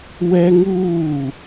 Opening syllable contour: high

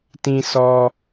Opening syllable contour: low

